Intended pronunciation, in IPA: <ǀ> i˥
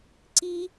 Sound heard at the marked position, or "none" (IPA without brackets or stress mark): ǀ